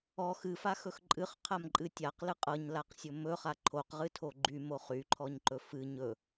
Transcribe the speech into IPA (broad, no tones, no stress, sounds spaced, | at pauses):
ɔ x ɨ f a x ɵ x ǃʼ ɨ χ qʰ a m ǃʼ ɨ tʲ a q l ɨ qʼ ɤ ɲ l a q sʲ ɵ m ɵ χ a ǃʰ o q ʁ ɨ tʰ o ɡ͡ǃ y m o χ y ǃʰ ɔ ɲ ǃ ɵ f ɨ ɲ ɵ